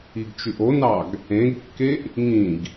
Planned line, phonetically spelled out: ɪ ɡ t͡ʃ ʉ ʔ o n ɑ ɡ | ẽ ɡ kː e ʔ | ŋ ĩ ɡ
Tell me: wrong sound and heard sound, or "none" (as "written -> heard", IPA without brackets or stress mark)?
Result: ɪ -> i